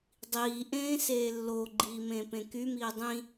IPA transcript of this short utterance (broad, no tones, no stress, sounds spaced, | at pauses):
dˤ iː ʔ ẽː s eː lː o ɡ͡ǃ iː m ẽː p ẽ k y m iː dˤ ĩ